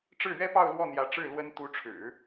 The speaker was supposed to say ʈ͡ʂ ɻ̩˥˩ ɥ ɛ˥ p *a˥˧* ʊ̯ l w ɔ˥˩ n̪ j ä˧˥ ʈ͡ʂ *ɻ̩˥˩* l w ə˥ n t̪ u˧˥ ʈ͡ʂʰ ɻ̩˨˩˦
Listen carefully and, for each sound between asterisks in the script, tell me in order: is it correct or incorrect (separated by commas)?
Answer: incorrect, correct